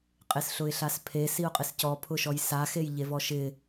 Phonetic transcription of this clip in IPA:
qʼ e s ɬ ʊ ɪ̯ ɬ a s pʰ e s i ʊ̯ qʼ ɪ s c ɔ pʰ ʊ ʃ ɔ j s a x e j ʎ e v ɔ ʃ ɪ

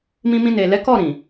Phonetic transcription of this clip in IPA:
m ĩ˧ m ĩ˧ n e˨ l ɛ˨˦ k ɔ˦˨ ɾ ĩ˨

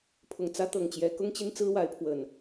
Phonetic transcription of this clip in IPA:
pʰ ʊ˨˩ ŋ t͡s ä˦ t̪ ɤ˨˩ ŋ t͡ɕ j ɛ˨˦ k ʊ˦ ŋ t͡ɕ i˦ n t͡s ɹ̩˦ w a˨˦ ɪ̯ pʰ w ə˨˩ n

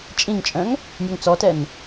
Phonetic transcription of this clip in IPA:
t͡ʃʼ ĩ ŋ t͡ʃʼ œ̃ ŋ | nʲ ø ŋ t͡s ɔ t ɛ n

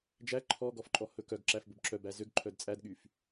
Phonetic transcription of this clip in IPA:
d͡ʒ æ ǃʰ ɔ ɡ ɔ f ǃʼ ɔ h ɵ k œ ɡ ǁ æ f b ɵ b ǁ œ b æ z ø ɡ ǃʰ œ d t͡sʼ æ d ɠ y f

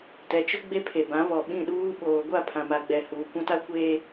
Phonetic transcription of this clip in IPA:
t ɛ˨ t͡ʃ ʊ˦ ɡ͡b e˦ pʰ e˨ b ã˨˦ β ɔ˨ ɓ ĩ˦˨ ɗ uː˦ ɓ oː˨ ɡʷ a˦˨ pʰ ã˨ m a˨ ɡ͡b ɛ˨ h uː˨ kʷ ã˦ t a˦ kʷ eː˦

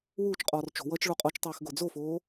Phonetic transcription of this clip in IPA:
w uː t͡ʃ qʼ ɔː r t͡ʃ o̤ w ʌː t͡ʃ ɭ o qʼ ɔ t͡ʃ tˤ eː x ɡ o d͡z o f oː

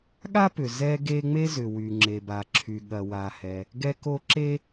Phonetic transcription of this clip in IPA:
ɠ a˥ p ʏ˩ z ɛ˥ ɡ e˥ ŋ͡m e˥ z ʏ˩ w y˩ ŋ͡ǁ e˩ b a˩ ǁʰ y˩ ɠ ɐ˩ w a˩ h ɛ˩ | ɡ ɛ˥ k o˥ ǁ e˥

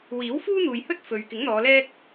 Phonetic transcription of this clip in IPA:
w iː˨˥ w f uː˥ n̪ uː˨ j h ɵ˥ t̚ f ɵ˨ ɥ k ɪ˨˥ ŋ n̪ ɔː˨˧ l ɛː˥ k̚

